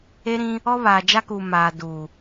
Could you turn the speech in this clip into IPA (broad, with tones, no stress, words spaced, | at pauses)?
e˦ɾĩ˦ | ɔ˦βaː˨d͡ʒa˦kuː˨ maː˨ du˨